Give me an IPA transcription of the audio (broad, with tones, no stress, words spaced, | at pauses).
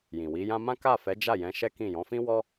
jĩ˨wi˨˦jã˦ mã˦ka˦˨ fɛ˨˦ d͡ʒa˦˨jɛ̃˨˦ ʃɛ˦kĩ˦˨ jɔ̃˨˦fĩ˦wɔ˦